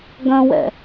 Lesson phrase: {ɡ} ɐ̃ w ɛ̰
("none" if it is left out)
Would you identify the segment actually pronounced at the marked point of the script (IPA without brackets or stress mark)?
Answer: ɡ